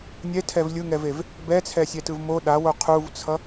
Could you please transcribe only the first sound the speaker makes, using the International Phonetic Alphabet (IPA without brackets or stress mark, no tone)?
nʲ